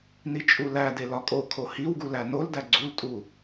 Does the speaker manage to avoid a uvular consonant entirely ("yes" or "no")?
yes